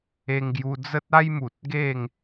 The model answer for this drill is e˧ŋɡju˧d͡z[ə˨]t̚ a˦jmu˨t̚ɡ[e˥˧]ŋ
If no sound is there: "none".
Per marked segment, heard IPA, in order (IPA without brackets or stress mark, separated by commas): ə˦, e˥˧